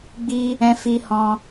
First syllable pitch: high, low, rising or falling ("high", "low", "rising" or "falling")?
high